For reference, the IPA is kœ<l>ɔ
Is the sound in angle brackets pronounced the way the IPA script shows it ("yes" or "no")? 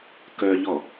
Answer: no